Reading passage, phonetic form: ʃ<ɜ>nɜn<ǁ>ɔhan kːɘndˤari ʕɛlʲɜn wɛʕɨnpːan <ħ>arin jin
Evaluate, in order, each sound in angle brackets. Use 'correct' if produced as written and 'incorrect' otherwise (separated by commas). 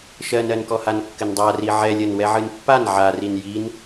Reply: correct, incorrect, incorrect